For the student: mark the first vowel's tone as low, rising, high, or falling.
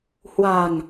low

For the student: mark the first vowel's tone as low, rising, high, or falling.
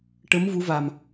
rising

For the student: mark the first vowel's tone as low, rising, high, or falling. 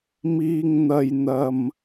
low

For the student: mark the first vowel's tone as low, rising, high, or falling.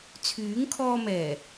rising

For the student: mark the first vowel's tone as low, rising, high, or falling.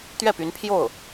falling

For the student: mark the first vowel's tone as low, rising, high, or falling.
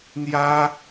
high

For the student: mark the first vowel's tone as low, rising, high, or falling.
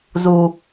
low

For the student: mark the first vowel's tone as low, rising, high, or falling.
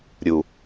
low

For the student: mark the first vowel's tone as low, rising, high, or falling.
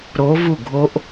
rising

